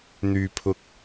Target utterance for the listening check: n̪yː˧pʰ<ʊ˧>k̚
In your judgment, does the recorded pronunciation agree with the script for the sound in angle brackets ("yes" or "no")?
yes